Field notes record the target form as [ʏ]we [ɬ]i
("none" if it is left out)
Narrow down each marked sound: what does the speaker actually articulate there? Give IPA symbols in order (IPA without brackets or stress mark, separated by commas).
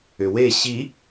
ʏ, ɕ